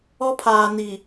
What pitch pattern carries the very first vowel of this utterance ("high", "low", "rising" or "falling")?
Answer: high